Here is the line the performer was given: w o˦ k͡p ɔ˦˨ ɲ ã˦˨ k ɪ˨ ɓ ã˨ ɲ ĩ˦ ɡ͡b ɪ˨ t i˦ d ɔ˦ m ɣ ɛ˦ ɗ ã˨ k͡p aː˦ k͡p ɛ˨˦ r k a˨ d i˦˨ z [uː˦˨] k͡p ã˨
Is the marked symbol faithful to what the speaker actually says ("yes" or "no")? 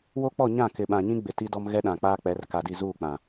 yes